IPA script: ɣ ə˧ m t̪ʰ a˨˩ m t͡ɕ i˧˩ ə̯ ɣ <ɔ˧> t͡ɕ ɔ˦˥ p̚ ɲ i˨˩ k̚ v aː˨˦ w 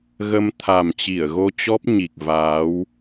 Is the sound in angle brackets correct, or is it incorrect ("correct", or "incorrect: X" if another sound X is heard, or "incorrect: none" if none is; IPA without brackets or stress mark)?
incorrect: o˧